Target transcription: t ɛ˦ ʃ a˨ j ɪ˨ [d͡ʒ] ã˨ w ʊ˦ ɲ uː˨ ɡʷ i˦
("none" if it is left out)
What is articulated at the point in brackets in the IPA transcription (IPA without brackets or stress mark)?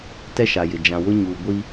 d͡ʒ